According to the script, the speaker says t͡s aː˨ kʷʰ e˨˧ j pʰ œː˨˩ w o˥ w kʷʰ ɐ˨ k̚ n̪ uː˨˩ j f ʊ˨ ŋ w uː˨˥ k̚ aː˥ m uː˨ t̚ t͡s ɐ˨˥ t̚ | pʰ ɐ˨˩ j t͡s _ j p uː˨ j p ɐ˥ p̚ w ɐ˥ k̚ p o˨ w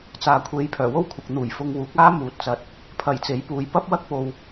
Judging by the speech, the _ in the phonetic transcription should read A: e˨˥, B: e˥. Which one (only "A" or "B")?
A